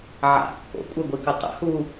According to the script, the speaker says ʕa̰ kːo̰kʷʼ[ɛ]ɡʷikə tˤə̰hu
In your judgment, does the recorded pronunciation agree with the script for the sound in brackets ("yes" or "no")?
yes